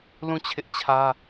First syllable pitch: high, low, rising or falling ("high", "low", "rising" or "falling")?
falling